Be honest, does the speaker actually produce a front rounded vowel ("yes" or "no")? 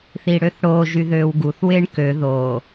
yes